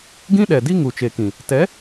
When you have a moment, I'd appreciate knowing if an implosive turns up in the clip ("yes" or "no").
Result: yes